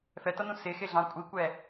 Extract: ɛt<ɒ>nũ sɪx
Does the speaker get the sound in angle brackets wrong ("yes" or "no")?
yes